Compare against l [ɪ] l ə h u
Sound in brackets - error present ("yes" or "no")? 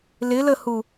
no